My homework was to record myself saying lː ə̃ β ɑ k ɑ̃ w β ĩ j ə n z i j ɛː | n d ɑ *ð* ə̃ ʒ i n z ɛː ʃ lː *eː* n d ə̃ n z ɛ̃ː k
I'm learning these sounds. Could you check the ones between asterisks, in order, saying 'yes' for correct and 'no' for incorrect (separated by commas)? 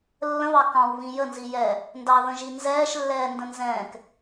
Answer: yes, no